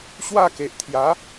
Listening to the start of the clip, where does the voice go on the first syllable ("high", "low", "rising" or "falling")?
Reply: falling